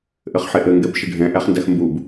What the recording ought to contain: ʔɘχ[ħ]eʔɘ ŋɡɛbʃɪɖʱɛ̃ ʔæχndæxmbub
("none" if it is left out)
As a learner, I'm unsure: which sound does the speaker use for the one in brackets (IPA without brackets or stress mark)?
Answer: ħ